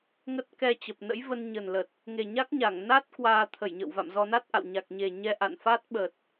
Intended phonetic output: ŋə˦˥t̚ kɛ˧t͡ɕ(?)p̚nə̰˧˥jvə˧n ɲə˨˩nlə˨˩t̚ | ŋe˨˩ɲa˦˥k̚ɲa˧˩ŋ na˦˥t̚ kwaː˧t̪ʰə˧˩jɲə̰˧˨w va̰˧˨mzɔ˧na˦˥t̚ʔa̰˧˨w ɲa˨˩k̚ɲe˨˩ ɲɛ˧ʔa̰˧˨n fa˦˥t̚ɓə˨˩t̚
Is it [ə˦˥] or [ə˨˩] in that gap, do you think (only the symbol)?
ə˨˩